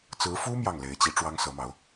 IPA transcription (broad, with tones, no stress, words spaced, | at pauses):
t͡sɹ̩˧˥fu˥ mjɑ˥˩ŋle˧˥ɪ̯t͡ɕi˧˥ ʈ͡ʂwɑ˥ŋsɤ˧˥mɑ˧˥ʊ̯